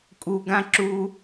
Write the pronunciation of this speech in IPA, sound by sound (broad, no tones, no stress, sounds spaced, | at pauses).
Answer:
kʼ u ɡ ã ǁ u